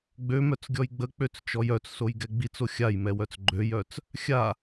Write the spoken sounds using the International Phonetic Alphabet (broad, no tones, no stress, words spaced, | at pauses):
ɡ͡bømœt͡sɡʲɔj ɡ͡bək͡pøt͡st͡ʃɔj œt͡ssojɡɛ ɡ͡bit͡so xʲajmɛwœt͡s ɡ͡ǃøjœt͡s | xʲa